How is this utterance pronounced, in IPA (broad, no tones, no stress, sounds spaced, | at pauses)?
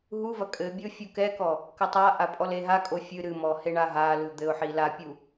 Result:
ɦ u v ɐ kʼ ɘ bʲ o fʲ u k ɛ k ɔ | k ɐ tˤ a ʔ a pʼ ɔ l e ɦ a kʼ o fʲ ɨ ɾ ɨ m ɔ h e ɳ a ɦ a l u d̪ ɘ ʊ̯ ħ i l a pʲ u